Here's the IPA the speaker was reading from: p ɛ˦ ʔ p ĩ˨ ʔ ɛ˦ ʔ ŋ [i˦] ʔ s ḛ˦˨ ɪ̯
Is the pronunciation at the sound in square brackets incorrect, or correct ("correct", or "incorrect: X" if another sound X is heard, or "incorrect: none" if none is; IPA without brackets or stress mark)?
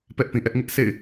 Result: incorrect: ɪ˦